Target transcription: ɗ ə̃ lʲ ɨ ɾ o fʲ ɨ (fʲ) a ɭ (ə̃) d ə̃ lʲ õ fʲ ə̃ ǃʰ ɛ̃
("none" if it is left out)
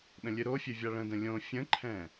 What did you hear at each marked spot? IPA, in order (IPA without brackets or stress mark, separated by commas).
vʲ, ə̃